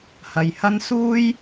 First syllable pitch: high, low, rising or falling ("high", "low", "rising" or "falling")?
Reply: low